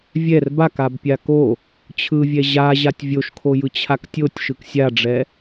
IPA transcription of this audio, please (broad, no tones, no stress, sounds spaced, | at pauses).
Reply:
vʲ ɛ r b a k a b pʲ a k o | t͡ɕʰ ɯ vʲ ɛ ʑ a ʑ a tʲ vʲ o ʃ kʰ o j ɯ t͡ɕʰ a k tʲ o tʲ ʃ ɯ k sʲ a ɖ͡ʐ ɛ